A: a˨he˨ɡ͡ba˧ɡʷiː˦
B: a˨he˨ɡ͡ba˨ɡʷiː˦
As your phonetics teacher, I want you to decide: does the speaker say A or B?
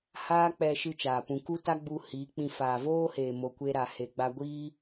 A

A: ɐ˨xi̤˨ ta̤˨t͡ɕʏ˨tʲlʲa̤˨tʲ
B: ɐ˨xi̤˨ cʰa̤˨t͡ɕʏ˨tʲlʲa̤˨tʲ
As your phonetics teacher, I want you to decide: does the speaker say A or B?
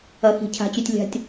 B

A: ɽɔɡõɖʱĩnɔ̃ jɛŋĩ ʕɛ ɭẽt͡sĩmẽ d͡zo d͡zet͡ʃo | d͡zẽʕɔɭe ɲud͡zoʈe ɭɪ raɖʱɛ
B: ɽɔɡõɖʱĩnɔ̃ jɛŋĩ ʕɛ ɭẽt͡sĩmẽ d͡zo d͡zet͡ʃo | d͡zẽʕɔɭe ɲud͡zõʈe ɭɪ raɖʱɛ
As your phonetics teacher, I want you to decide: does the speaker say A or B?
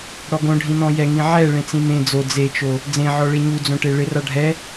B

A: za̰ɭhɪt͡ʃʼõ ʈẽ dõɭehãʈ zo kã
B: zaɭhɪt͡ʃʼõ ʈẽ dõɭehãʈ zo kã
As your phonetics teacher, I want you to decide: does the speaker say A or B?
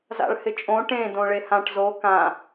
A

